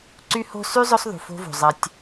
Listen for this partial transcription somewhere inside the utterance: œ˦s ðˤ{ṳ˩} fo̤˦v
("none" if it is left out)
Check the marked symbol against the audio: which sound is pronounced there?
ṳ˩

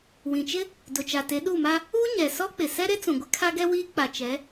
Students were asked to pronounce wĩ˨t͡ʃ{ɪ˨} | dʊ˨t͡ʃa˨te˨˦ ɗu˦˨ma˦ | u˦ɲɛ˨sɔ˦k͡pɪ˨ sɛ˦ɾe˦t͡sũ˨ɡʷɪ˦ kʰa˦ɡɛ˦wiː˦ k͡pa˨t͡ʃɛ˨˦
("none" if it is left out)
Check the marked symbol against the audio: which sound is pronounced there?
ɪ˦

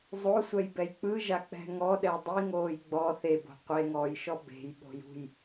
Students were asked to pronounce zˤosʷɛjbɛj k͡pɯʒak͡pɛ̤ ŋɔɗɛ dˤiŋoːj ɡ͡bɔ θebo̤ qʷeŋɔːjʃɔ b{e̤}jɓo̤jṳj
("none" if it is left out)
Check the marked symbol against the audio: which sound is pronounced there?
e̤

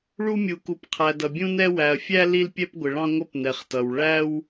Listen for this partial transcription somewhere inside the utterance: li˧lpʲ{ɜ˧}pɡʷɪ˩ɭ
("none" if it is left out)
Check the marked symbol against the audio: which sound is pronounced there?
ɛ˧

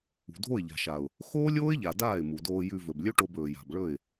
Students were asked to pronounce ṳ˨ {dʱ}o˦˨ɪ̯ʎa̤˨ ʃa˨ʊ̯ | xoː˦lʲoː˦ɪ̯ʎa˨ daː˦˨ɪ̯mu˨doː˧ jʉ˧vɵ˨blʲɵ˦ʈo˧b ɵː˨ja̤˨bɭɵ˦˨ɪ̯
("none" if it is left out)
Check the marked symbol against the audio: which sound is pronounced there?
dʱ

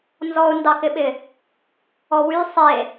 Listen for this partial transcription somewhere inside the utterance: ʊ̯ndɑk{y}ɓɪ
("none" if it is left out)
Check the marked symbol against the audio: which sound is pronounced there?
ɪ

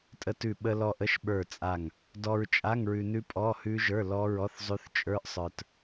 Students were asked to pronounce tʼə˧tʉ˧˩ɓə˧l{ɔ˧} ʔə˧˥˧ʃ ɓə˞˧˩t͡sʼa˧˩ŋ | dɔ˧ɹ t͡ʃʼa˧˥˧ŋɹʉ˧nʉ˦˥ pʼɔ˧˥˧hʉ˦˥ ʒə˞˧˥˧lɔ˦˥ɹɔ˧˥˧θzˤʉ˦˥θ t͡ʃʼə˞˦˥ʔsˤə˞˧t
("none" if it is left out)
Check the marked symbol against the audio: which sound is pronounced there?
ɔ˧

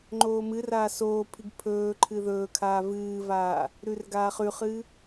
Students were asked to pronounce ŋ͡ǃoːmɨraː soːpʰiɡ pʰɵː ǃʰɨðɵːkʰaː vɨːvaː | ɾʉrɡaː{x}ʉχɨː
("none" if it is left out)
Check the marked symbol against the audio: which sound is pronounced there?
χ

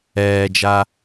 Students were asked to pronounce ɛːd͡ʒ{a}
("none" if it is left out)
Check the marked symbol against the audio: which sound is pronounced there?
a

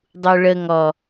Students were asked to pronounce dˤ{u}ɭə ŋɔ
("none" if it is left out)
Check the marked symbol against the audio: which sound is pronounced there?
u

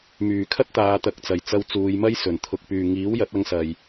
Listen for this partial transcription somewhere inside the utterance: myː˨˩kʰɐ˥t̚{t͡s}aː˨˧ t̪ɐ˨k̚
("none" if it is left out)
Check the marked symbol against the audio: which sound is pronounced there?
t̪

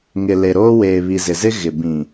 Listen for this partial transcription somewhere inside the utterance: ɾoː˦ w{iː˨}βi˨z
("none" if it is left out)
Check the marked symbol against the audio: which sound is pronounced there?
eː˨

